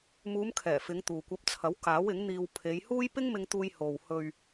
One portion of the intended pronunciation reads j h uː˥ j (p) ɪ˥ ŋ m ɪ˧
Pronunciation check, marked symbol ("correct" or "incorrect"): correct